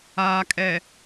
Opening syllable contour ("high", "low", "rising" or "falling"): low